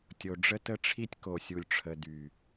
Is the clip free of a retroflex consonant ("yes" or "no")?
no